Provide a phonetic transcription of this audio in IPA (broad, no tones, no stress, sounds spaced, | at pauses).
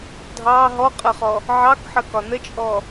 dʱ ɑ ɦ ɔ qʼ ə χ ɔ | ʕ ɑ k ħ ə k ɒ n ə t͡ʃʼ ɔ